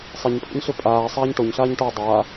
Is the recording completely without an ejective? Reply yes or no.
no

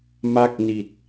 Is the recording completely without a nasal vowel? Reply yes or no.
yes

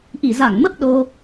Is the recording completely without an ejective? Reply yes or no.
yes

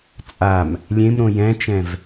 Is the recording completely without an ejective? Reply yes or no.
no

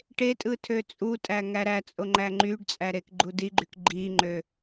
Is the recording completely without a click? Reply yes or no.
no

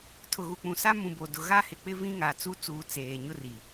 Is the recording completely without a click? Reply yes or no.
yes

